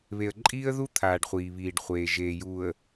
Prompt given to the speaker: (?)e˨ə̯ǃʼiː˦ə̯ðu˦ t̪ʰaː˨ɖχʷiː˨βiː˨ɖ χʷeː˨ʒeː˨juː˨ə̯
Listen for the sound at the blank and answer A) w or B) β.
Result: B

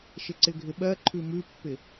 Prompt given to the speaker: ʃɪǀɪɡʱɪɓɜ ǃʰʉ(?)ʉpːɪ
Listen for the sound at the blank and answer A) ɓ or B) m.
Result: B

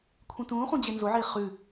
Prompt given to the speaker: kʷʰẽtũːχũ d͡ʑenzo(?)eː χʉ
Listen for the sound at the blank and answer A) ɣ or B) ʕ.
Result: B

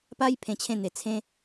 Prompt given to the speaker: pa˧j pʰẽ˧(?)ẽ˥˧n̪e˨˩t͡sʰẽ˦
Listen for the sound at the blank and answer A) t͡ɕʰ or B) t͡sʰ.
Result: A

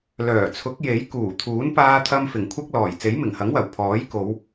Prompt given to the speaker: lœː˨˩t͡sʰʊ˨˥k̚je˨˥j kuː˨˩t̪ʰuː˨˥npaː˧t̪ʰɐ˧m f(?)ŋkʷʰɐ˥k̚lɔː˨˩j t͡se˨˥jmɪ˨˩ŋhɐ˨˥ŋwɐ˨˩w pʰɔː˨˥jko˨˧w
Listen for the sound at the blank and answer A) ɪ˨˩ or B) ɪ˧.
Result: A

